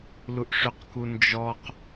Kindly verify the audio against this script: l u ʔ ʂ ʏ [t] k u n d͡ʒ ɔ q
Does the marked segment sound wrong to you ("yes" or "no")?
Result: yes